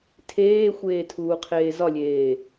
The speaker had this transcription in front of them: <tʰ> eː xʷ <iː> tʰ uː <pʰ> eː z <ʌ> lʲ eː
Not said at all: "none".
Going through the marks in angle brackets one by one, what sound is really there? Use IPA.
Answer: tʰ, eː, qʰ, ɒ

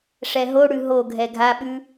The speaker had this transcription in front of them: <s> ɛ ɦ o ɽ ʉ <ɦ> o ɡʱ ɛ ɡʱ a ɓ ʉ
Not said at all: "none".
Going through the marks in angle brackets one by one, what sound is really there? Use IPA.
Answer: ʂ, ɦ

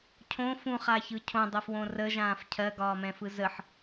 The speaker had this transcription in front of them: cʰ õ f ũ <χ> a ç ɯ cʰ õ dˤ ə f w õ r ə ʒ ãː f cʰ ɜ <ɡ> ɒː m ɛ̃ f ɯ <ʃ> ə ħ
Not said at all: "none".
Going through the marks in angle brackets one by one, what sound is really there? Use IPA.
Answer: χ, ɡ, z

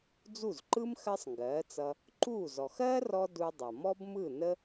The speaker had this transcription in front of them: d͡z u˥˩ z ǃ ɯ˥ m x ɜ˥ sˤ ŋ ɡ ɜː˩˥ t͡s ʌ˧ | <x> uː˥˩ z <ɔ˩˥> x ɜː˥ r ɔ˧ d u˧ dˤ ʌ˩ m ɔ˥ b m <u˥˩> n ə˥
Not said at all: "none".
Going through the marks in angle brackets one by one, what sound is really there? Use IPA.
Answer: ǃ, ɔ˩, ɯ˥˩

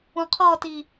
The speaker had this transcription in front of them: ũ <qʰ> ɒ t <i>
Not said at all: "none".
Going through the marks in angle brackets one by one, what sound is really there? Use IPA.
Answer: qʰ, i

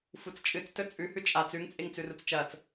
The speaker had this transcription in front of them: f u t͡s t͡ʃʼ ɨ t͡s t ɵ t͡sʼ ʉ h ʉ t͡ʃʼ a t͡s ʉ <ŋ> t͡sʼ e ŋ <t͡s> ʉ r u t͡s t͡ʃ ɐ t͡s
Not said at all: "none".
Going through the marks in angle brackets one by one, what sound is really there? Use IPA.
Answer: ŋ, t͡s

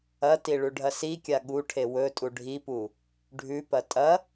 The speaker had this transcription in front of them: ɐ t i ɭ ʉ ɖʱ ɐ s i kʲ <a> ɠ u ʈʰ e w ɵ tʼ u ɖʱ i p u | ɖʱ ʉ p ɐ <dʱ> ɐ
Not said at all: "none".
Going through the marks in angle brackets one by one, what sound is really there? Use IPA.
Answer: a, tʼ

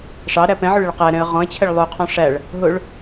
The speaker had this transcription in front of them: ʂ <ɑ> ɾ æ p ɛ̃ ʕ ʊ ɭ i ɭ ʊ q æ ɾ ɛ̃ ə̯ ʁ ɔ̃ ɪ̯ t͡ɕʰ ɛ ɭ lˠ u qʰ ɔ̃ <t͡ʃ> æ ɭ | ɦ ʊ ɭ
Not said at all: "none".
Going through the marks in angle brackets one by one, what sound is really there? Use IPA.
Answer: ɑ, ʂ

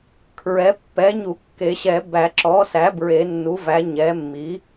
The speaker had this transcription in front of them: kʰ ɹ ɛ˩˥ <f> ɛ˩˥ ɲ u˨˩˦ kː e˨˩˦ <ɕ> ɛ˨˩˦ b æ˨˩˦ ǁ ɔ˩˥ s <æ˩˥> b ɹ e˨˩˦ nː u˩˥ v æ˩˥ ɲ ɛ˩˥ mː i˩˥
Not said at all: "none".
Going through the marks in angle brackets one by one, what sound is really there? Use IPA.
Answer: pː, ɕ, æ˩˥

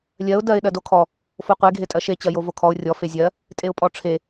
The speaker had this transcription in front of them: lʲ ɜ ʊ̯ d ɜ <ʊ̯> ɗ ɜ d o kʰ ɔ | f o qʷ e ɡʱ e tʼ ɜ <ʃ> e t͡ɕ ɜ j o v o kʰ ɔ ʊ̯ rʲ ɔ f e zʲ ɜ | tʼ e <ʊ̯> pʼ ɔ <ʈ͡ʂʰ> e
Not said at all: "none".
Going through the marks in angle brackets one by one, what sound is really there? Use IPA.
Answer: ɪ̯, ʃ, ʊ̯, ʈ͡ʂʰ

